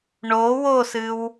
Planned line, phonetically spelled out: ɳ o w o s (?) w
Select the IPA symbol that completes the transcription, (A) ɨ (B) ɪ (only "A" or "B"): A